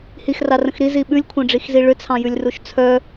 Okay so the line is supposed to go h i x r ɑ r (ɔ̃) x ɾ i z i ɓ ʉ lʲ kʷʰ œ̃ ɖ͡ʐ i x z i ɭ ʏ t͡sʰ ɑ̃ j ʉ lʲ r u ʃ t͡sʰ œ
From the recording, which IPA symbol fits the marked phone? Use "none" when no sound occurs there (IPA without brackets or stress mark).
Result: ə̃